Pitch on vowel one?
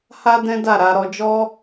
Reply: high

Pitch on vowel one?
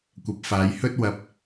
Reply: rising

